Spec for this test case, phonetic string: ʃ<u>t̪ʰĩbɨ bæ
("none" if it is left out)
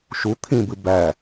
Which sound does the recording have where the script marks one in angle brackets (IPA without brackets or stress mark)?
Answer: u